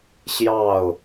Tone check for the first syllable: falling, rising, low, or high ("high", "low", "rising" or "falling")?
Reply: falling